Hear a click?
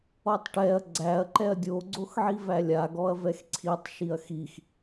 yes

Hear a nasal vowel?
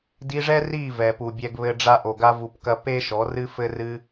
no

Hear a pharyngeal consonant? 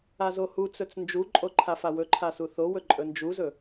no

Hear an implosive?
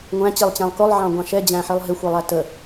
no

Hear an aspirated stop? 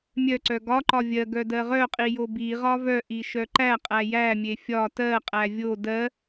no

